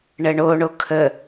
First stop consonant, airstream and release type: aspirated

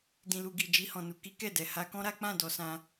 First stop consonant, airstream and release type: plain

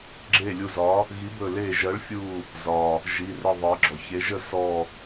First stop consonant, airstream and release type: click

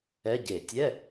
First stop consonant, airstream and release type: plain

